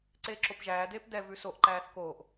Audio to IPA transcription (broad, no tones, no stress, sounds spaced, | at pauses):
ǀ eː ǁ o p ʒ æː d̪ eː p d̪ ɛ v ʉ s o ʔ ǃ æː θ k oː ʔ